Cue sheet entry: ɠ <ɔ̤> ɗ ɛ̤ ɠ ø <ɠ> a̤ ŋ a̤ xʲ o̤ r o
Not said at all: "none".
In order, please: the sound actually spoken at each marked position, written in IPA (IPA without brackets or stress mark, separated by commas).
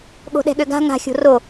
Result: o̤, ɡ